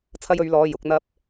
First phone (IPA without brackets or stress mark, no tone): t͡sʰ